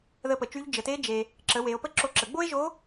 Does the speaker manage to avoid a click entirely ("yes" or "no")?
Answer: no